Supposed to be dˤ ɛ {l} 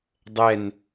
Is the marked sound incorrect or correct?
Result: incorrect